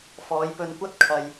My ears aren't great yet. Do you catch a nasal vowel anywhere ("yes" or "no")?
no